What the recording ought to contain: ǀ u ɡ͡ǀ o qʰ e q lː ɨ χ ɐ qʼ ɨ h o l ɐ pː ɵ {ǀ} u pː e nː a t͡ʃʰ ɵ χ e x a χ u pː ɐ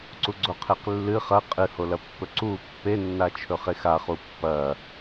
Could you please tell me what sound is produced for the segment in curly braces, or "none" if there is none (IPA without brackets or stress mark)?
ǀ